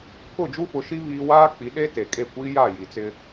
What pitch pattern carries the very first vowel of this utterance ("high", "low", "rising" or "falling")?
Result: falling